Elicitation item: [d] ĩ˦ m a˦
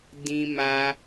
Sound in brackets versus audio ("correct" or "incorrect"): correct